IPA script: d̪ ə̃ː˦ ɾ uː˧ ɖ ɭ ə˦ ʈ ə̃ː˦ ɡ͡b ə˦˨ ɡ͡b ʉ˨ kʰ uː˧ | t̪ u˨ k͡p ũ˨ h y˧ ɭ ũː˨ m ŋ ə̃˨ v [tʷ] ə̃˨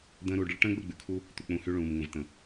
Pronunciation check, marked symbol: incorrect: t̪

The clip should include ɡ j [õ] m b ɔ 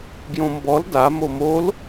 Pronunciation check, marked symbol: correct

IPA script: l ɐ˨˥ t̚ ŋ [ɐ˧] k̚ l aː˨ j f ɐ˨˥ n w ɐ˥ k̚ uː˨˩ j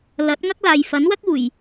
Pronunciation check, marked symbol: incorrect: ɐ˥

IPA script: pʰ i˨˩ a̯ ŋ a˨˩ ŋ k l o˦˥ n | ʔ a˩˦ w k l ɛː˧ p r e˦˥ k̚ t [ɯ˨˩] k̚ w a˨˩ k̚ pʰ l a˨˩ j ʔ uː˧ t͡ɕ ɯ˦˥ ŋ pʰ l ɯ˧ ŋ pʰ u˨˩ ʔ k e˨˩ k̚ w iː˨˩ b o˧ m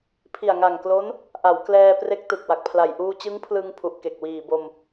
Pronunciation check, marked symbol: correct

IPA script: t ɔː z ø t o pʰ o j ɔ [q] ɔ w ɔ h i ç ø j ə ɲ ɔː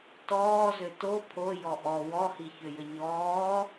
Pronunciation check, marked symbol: incorrect: ʔ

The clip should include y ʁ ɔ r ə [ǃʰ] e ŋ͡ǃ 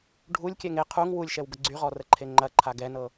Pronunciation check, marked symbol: correct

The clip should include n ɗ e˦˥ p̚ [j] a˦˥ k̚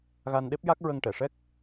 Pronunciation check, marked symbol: correct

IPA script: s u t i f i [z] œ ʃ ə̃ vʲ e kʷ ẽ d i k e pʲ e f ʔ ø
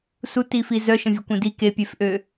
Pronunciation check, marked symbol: correct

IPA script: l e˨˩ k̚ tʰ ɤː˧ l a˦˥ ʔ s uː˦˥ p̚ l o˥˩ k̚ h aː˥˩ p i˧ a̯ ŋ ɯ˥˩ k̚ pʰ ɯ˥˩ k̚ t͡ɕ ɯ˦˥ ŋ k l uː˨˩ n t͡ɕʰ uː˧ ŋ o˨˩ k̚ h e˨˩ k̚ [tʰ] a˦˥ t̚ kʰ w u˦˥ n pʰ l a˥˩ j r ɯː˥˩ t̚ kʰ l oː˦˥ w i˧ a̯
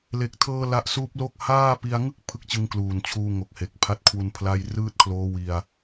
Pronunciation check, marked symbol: incorrect: pʰ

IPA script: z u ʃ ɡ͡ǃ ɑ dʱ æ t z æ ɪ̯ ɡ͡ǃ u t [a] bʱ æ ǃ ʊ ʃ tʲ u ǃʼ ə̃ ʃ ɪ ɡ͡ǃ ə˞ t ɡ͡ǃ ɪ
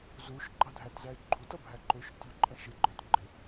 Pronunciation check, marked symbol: incorrect: ʌ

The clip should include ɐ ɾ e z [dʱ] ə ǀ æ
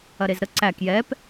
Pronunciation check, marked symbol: incorrect: ɾ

